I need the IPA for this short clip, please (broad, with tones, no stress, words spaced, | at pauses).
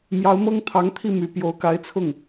mjɑ˧˥ʊ̯mɤ˥ŋt̪ʰɑ˧˥ŋt̪ʰi˥˩ my˨˩ pjo˧˥ʊ̯ka˧˥ɪ̯t͡sʰʊ˥˩ŋ